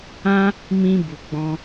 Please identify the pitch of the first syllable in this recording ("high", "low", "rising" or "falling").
high